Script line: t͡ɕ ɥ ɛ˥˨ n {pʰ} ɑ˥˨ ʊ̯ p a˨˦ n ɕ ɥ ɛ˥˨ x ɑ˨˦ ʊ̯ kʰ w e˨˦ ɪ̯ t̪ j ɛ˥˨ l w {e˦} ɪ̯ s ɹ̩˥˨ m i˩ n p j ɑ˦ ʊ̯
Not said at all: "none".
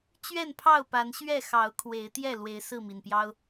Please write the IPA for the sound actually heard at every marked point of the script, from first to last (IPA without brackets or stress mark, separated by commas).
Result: pʰ, e˨˦